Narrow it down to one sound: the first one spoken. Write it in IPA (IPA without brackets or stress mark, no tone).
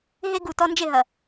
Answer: ɦ